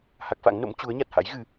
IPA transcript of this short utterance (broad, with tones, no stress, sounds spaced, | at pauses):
h a˦˥ k̚ f a̰˧˥ ŋ n o̰˧˥ m t͡ɕ u˨˦ ə̯ ɲ a˨˩ t̚ h a̰˧˥ j ɣ ɨ˧